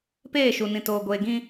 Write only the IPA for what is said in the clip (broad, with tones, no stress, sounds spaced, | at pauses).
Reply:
p eː˦˨ ʃ u˨ n ĩ˨ t oː˨ ɡʷ eː˨ ɡ ĩ˦